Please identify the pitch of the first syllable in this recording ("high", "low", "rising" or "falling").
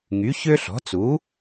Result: rising